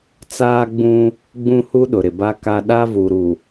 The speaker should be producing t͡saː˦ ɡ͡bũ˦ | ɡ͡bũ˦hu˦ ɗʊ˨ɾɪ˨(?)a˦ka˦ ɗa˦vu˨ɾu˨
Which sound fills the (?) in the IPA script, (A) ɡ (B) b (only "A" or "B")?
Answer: B